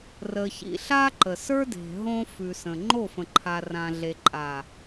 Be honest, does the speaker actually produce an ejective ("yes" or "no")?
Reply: yes